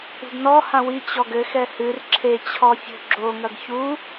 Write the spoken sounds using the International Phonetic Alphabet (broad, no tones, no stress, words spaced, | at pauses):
ṳdnɔ hãwi t͡ɕɔɡɘ xɛhɨr ǁʰet͡ɕʰɔfʲo̤ ɡ͡ǁoŋɐɡ çu